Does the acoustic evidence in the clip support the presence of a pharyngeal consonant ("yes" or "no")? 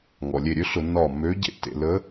no